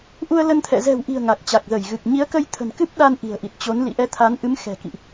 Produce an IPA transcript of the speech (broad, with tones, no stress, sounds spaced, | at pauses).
ʔ u˧ ə̯ l ə˧ n t̪ʰ ɛ̰˧˨ z ɛ̤˨˩ w ʔ i̤˨˩ ə̯ ŋ a˨˩ k̚ t͡ɕ a˨˩ k̚ z ə˧˩ j ɣ ɨ˨˩ k̚ ɲ i˨˦ ə̯ k ə˧ j t̪ʰ ə̤˨˩ n k ɨ˦˥ p̚ ɗ a˧ n ʔ i̤˨˩ ə̯ ʔ i˨˩ t̚ t͡ɕ o˨˦ n l ḭ˧˨ ʔ ɛ˧ t̪ʰ a˨˦ n ʔ ɨ˨˦ m x ɛ̤˨˩ k ḭ˧˨ ʔ